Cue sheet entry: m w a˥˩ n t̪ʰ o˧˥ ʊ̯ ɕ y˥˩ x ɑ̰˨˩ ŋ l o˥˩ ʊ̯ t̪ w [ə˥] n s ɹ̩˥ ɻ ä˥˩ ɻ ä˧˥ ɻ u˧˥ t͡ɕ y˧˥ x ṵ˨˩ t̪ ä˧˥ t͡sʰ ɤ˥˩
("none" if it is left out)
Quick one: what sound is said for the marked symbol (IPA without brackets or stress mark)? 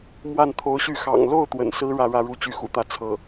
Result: ə̰˨˩